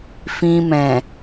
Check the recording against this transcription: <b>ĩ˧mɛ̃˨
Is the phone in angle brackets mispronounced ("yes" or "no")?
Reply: yes